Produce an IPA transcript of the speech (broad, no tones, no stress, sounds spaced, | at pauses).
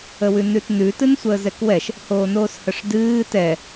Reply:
ə w ʉ n ʉ t n ʉ t ɨ n sʷ əː z ɛ k w ɛ ʃ | h oː n oː s h ə ʂ d ɨː t ɛ